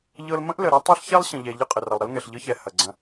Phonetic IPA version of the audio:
ʎ ɤ˦ l m ə̃˦ ʔ l ə˨ ɾ ɐ˦ tˤ ɛ˦ ɬ ç ɛ˦ lˠ ɕ ə̃˨ ʎ ɛ˨ ʎ ə˦ qʼ ə˨ r ɐ˨ lˠ ɾ ə˦ l ŋ ɛ˨ ɬ ʎ ɤ˦ ç ɛ˨ h ɐ˨ ɡ͡ǀ ɐ̃˦

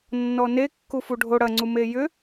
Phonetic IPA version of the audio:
nː ɔ n e kː u f u ɖʱ o ɽ ɐ ŋ͡ǀ u m e j ʏ

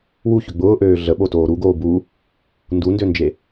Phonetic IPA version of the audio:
w u ç ʏ ɡ͡b ʊː ʔ øː ɮ ə ɓ o t oː ɾ u ɡ oː b u | n d u n d ø n d͡ʒ e

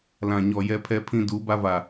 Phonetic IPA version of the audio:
l ã˨ ɲ ɔ˨ j ɛ˦ pʰ ɛ˦ pʰ ĩ˦ d u˨˦ b a˦ v a˨

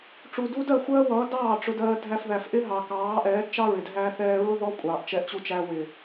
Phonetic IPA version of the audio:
ʈ͡ʂ u˨ d u˧ d ɜ˦˨ xʷ ɜː˦ w ʌː˨˦ d ɑː˦˨ ʈ͡ʂ ʊ˧ d ɜː˧ dʱ æ˧ f ð æ˨ f ʔ ɪ˦ ɦ ɑ˨ k ɑː˨˦ ʔ ɛː˨˦ d t͡ʃ ɑ˦ ɹ ɪ˨ d ɦ æ˦ θ ɛː˦ ɹ ʊ˦ ð ɔ˧ kʷʼ ɑː˨ ʔ t͡ʃ ɛ˧ ʔ t͡ɕ u˧ t͡ʃ æ˧ w ɪ˨

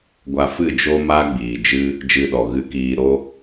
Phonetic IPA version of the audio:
ɡʷ a˧ f ɨ˦˨ d͡ʒ o˦ m a˦ ɡ͡b iː˨ d͡ʒ ɨ˦ | d͡ʒ ɨ˧ ɗ ɔ˨ ɣ ɨ˧ k iː˧ ɾ o˦

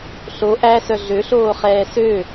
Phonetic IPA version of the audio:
ɬ o ʔ æ s œ ɮ ø ɬ oː χ ɛː s ø

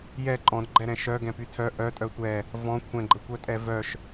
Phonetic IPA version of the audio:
j ɛ ǃʼ ɔ̃ d ɡ͡ǃ ɛ ɾ ɛ̃ ʃ œ ɡ ɛ̃ p y tʰ œ ʔ œ tʼ œ tʷ ɛ | v ɔ̃ kʷʰ ɛ̃ ɡ͡ǃ ə kʷ œ tʼ ɛ v œ ʃ

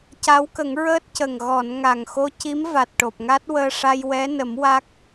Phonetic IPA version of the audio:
c a˧˥ w k ə˨˩˦ ŋ ɹ əː˦˥ t̚ c ə˨˩ ŋ ɣ ɔ˨˩˨ n ŋ a˨˩ ŋ x o˧ c i˧˥ m v a˨˩ t̚ ʈ o˨˩ p̚ ŋ a˦˥ t̚ w əː˧ ʂ a˧ j w ɛ˧˥ n ə˨˩˦ m w a˦˥ k̚

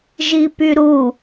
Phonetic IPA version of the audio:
ʒ i p y ɾ u

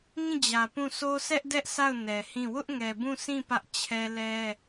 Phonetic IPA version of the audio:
ŋ ĩ˦˨ d͡ʑ ä˨ p ũ˦˨ sʰ o˦ sʰ ɛ˦ ʔ d ɛ˦ ʔ s a˦˨ ʊ̯ n ɛ˨ h ĩ˦˨ w ʊ˦ ʔ ŋ ɛ˨ b ũ˦˨ sʰ ĩ˦˨ p ä˦ ʔ t͡ɕʰ ɛ˦ l ɛ˦

